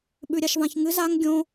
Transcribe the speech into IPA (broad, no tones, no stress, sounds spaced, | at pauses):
ɓ ʉ ɾʲ a ʃ v ã ç ŋ ɨ z a ŋ ɡʲ õ